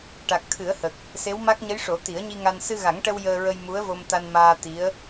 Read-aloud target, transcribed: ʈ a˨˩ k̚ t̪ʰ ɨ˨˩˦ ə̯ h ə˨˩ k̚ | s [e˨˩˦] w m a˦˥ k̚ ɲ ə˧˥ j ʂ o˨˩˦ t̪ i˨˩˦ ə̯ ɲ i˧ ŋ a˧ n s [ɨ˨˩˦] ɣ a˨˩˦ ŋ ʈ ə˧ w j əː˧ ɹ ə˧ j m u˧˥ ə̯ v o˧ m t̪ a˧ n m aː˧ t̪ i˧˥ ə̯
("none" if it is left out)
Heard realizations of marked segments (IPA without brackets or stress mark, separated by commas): e˧˥, ɨ˧